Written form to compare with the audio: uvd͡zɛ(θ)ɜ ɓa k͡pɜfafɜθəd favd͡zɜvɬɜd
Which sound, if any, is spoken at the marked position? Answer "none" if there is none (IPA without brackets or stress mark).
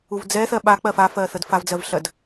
θ